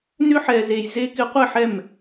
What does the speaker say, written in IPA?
nʏ˦ħɛ˨ze˨j ze˦kɪ˦ qʷɪ˦˨ħɛ˦˨m

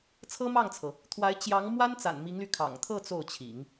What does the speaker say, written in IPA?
t͡sʰɤ˥mɑ˥˩ŋt͡sʰɤ˩ | t̪ʰwa˧˥ɪ̯ t͡ɕjɑ˧˥ŋ mwa˥nt͡sa̰˨˩n mi˧˥ŋly˧kʰɑ̰˨˩ŋ t̪ʰɤ˥˧ t͡so˥˩ʊ̯t͡ɕʰḭ˨˩˦ŋ

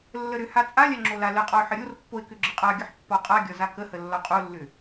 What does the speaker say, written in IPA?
lːəɾʏha t͡sʼalʲa ŋ͡ǁolaləqʼɒʊ̯ ħəɾʲorpːoɪ̯ kʏɡ͡ǁəqʼaɡʲəħ pːɒqʼaɡʲɒ zakəhə lːɒqʼolːʏ

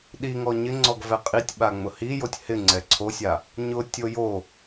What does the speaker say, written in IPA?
ɗiŋɔ ɲɪŋ͡ǀɔɡ vɛqʼitʲɓa ŋ͡mʊhijotʲ hɪŋ͡ǀɛ ǀʰosʲa | ɲʊtʲo jo

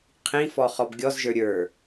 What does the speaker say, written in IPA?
qʰĩfɔ χɔbɡʲɔzʒə˞ ɾʲə˞

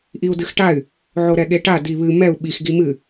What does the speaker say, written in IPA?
ʔiu̯dɨxʈay̯ | ʕoɾɛɠeʈa diβɨ mɛu̯ ɓix ɡimɨ

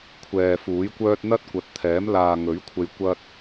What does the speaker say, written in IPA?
kʷʰɛː˨fuː˨˥jkʷœː˥t̚ n̪ɐ˥t̚kʷɐ˨˥t̚t̪ʰɛː˨˥m laː˨ŋɵ˨˥ɥ kʷʰe˧jkʷɐ˥t̚

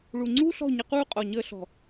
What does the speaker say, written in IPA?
ɭu˨ŋ͡ǀuː˦ɬɔ̤˦˨ ɲə˧quː˦qʼɔ˨ ɲəː˧ɬɔ̤˨

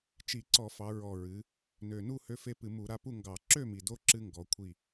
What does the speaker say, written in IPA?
t͡ʃi˧˩˧ǀɔ˧˩˧fɑ˩˧ ɹɔ˨˩ ɹɨ˩˧ | nø˨˩nu˥˨ hø˦fe˦ pɨ˧˩˧mu˧˩˧ɾa˦ pu˥˨ŋɡɑ˧˩˧ ǁø˥˨mi˨˩do˦ ǁɨ˦ŋɡɔ˩˧ kʷʰi˥˨

